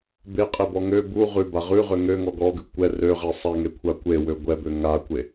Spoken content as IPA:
b e qʼ e b ɔ ŋ ø b u ʁ ʉ b a ʁ ʉ ʁ ø ŋ ø ŋ ɔ ɡ ɔ ɡ ʉ kʷ ɛ r ø ʁ ɛ sˤ a ŋ e kʷʰ a kʷ e w ø ɡʷ ɛ b ø ŋ a kʷ e

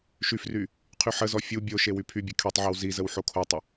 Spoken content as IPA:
ʃ y f r y | qʰ y ħ ə z ɔ fʲ u bʲ o ʃ e w y pʰ y bʲ e kʰ y tˤ ʕ e w z i z ə w ħ o kʰ o tˤ ə

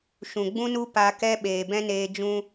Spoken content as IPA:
ʃ ũ˨ ɡ͡b ũ˦ n u˦ p a˧ k ɛ˦ ɓ eː˨ b ɛ̃˦ n eː˧ d͡ʒ ũ˧

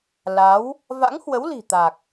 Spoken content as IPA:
l a˨˦ w | v a̰˧˥ ŋ h w ə˨˦ w l i̤˨˩ t̪ a˨˩ k̚

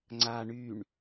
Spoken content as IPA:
ŋ͡ǀ a ɳ y ɳ

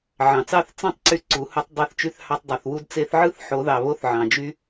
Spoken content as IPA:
ʕ ɑ̃˩ t͡s ɑ˥˧ θ t͡s ɑ̃˥˧ tˤ ǀ y˧ ǀ u˨˩˦ h u˧ tˤ dˤ e˧ θ t͡ʃ y˧ θ h ɑ˧ tˤ dˤ o˩ θ w u˥˧ d t͡s e˧ θ ʕ ɯ˥˧ θ ħ o˨˩˦ ð ɑ˩ β o˥˧ θ ʕ ɑ̃˩ d͡ʒ y˧

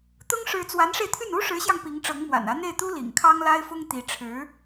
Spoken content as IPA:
t̪ ʊ˥ ŋ ʂ ɻ̩˥ t͡s w a˧˥ n ʂ e˧ ɪ̯ t̪ʰ y˥˩ n u˥ ʂ ɻ̩˧˥ ɕ j ɑ˧ ŋ p i˧˥ ŋ ʈ͡ʂ ɤ˧˥ ŋ m w a̰˨˩ n ä˧˥ n̪ e˥˩ ɪ̯ t̪ u˥ l ḭ˨˩ ŋ kʰ ɑ˥ ŋ l a˥ ɪ̯ f ʊ˥ ŋ t̪ i˧˥ ʈ͡ʂʰ ɻ̩˧˥

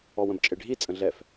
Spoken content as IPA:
ɔ w ə̃ b t͡ʃʼ e ɖʱ i t͡sʼ ə̃ ɮ ɛ f

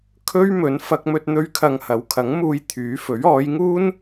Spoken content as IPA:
kʰ ɵ˥ ɥ m ɵ˨˧ n f ɐ˧ k̚ m ɵ˧ t̚ n̪ ɵ˧ ɥ kʰ ɐ˨ ŋ h ɐ˨˥ w kʰ ɐ˨˥ ŋ m uː˧ j t̪ʰ yː˨˥ f ɵ˨˥ ɥ ɔː˨˧ j ŋ uː˥ n

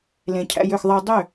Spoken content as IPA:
l ẽ˨ cʰ æ̰˧ j ø˦˨ x ðˤ ɛ˦ dˤ ø˦˨

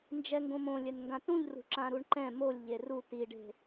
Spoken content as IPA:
n d͡ʒ ɛ ŋ ɡ õ m õ lʲ ɛ n ŋ ɡ ã t ũ ʎ r ṳ ǁ ã ɾ u ɳ ǃ ɛ̃ m o lʲ ʎ e r u t i ɖ e̤

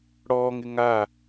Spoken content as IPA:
ɽ ɔː ŋ ɪ ŋ a

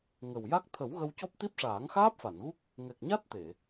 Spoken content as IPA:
ŋ ə˨˩ w j a˦˥ k̚ t̪ʰ ə˨˩˦ w ɣ ə˧ w c ɔ˦˥ p̚ t̪ i˦˥ p̚ ʂ aː˨˩˦ ŋ x aː˦˥ p̚ f a˨˩˨ n ɣ u˦˥ k̚ | ŋ ɛ˨˩ k̚ ɲ a˦˥ t̚ t̪ e˨˩˨

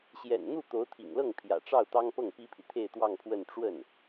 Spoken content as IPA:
ɕ j ɛ̰˨˩ n n̪ u˥˩ t̪ o˧˥ ʊ̯ t̪ʰ ḭ˨˩ ŋ l ɤ˥˩ ŋ pʰ j ä̰˨˩ ʈ͡ʂ ɑ˥˩ ʊ̯ t̪ ɑ˥ ŋ p ɤ˥˩ ŋ p i˥ pʰ i˨ t̪ʰ e˥˧ ɪ̯ t̪ w ɑ˥˧ ŋ pʰ w ə˥˧ n ʈ͡ʂ w ə˥˩ n

